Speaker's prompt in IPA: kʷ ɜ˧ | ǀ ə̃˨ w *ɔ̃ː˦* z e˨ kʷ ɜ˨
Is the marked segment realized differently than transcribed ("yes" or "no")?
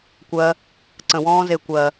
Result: no